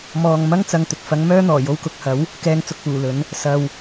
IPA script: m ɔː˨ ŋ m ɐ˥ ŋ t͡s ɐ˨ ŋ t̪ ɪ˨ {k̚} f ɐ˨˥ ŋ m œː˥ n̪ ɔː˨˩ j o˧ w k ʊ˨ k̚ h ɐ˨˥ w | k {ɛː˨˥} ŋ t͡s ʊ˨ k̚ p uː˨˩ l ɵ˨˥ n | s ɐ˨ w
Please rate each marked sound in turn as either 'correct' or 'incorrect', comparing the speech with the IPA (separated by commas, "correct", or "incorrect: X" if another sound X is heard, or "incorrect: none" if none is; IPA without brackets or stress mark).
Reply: correct, incorrect: ɛː˨